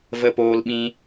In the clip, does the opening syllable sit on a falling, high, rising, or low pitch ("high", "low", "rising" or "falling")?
high